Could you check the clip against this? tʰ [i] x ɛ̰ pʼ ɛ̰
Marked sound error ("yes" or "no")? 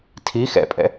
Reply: no